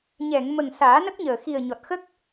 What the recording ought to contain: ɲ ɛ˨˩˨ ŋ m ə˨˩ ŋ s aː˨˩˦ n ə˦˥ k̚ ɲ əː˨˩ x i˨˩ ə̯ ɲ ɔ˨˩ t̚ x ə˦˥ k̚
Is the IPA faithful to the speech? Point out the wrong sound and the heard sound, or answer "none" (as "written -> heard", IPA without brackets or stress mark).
none